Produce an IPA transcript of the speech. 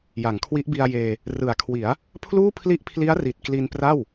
j a˩˦ ŋ kʰ w i˦˥ ʔ b i˧ a̯ j eː˧ | r ɯ˨˩ a̯ kʰ w i˩˦ a̯ | pʰ l uː˥˩ pʰ l i˦˥ ʔ pʰ l i˦˥ a̯ r i˨˩ t̚ k l i˧ n p r a˥˩ w

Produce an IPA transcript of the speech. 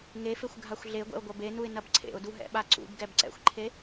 ŋ e f e xʷ ɡʱ a xʷ ɮ e ɡʷ ɛ̰ ʊ̯ ɡʷ ɐ b e n u ɪ̯ n ɐ b ǀʰ ḛ ʊ̯ d u ɦ ɛ̰ ɓ a ǀ ṵ b ɡ ɛ b ǀ ɛ̰ xʷ ǃʰ e

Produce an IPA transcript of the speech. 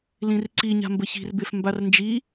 l ĩ r ǀ i ɲ a̤ m b ə ç i̤ r b e f m b a r n d͡ʒ i

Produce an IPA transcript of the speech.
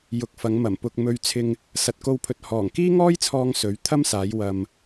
j ʊ˨ k̚ f ɐ˨˧ ŋ m ɐ˨˩ m p ʊ˧ k̚ m ɵ˧ ɥ t͡sʰ ɪ˧ ŋ | s ɐ˨ t̚ k o˧ w pʰ ɵ˨ t̚ h ɔː˨˩ ŋ k iː˥ ŋ ɔː˥ j t͡sʰ ɔː˧ ŋ s ɵ˨˥ ɥ t̪ʰ ɐ˥ m s aː˨˧ j w ɐ˨ m

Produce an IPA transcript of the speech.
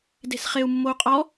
d e̤ s χ e u̯ mː o u̯ qʼ ɔ

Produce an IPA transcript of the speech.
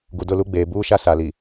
ɡ u˨ d ʊ˦˨ l u˦ ɡ͡b eː˨ b uː˦ ʃ a˦ s a˨ l i˨

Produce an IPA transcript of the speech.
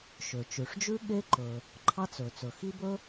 ʃ ø˩ t͡ʃ ʉ˩ ʂ d͡ʒ ʉ˥ ɠ e˥ ǃ ɵ˩ | ǃʰ ɑ˥ t͡s ɵ˩ t͡s ɵ˩ x i˥ b ɵ˥

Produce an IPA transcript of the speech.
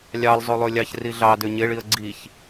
lʲ ɑ lˠ zˤ o lˠ ø lʲ ɑ ç r i ɮ ɑ d ø ɲ e ɭ i ə̯ ɡ͡ǀ i ç

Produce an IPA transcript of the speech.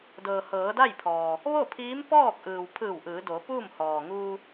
d ɤː˩ h ɤː˩˧ d a˥˨ j pʰ ɔː˩ | ʋ o˥˨ pʰ iː˧˥ m p ɔː˥˨ k̚ ʔ ɯː˩ w pʰ ɯː˧˩ w ʔ ɯː˩˧ d o˩˧ p uː˥˨ m h ɔː˩ ŋ uː˧

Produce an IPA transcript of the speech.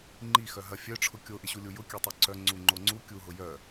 ŋ͡ǃ i x œ ɦ ɐ fʲ œ ʈ͡ʂʰ ʊ kʲ o ʔ ɪ ɕ u lʲ u j ʊ kʲ œ tˤ œ ǀ œ ŋ͡ǀ u ŋ͡ǃ o ŋ͡ǀ u kʲ u ɦ ʊ j œ

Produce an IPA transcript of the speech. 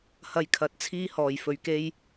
h ɐ˧ j kʰ ɐ˨˥ t̚ t͡sʰ iː˥ h ɔː˨˩ j f ɵ˨ ɥ k e˥ j

